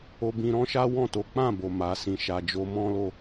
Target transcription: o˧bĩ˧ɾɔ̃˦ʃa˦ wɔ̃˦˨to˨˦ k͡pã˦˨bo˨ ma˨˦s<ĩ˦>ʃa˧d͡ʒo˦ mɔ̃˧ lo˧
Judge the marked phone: incorrect: ĩ˧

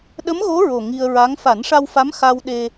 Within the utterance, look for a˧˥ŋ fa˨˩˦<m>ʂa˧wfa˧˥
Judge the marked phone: incorrect: n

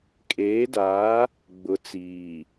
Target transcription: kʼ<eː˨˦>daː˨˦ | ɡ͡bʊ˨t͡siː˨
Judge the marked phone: correct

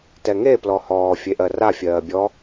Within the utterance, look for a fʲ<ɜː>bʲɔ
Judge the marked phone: correct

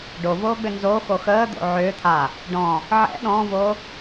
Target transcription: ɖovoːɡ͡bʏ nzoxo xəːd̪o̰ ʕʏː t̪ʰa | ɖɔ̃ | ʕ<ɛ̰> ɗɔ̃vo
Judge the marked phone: correct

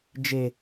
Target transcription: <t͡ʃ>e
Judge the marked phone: incorrect: d͡ʒ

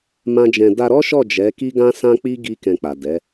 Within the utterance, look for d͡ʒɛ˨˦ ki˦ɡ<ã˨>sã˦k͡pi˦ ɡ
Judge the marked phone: incorrect: ã˦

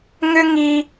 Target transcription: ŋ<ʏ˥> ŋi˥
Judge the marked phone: correct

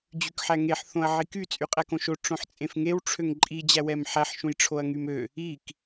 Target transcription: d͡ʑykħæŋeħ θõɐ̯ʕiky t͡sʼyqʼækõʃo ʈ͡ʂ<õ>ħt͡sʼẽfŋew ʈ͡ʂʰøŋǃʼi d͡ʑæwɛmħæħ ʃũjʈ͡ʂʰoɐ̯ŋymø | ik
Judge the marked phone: correct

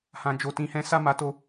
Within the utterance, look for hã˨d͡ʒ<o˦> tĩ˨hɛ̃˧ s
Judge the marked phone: incorrect: o˨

